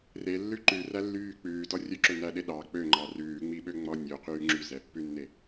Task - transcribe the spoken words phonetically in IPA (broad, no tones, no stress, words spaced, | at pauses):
relːʉ ǃʉrælːyː k͡pʉːdɔ rʲɵǁɵnæɗe ɗɑ k͡pøŋ͡ǃɑ rʉːŋ͡miɓøŋ͡mɔ nʲoqyː ŋ͡ǁyzɛpːʉnːe